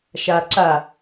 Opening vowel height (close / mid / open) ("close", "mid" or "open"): open